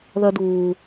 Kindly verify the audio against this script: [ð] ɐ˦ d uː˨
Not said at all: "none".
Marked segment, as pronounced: ð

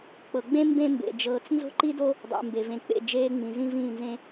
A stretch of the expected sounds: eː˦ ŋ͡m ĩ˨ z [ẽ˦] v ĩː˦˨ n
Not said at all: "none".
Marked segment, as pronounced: ĩ˦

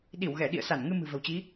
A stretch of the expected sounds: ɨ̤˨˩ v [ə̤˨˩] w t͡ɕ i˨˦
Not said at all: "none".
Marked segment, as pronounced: ə̤˨˩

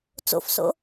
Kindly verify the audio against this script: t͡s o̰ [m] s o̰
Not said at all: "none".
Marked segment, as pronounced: f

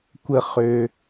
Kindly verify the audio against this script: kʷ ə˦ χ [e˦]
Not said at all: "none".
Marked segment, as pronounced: ø˦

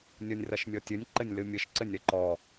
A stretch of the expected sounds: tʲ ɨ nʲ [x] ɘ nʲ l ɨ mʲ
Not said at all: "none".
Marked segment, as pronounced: ǃ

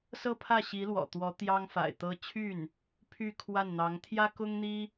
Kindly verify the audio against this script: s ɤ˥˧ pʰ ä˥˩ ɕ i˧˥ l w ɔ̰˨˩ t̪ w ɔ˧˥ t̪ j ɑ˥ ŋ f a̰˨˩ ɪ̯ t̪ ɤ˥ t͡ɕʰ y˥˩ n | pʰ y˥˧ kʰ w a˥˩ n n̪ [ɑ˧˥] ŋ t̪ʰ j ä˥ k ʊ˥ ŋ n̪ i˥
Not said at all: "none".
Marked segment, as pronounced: ɑ˧˥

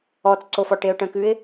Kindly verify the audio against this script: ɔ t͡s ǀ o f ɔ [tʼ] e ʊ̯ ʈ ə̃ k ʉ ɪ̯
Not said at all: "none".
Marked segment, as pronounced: ʈ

